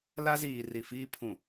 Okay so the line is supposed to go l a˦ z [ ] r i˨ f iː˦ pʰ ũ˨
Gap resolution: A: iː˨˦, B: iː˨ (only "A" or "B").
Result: B